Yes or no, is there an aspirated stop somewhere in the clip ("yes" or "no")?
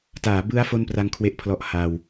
yes